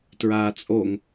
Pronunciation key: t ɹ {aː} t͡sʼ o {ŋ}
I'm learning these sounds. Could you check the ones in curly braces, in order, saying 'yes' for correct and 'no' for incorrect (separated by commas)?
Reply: yes, yes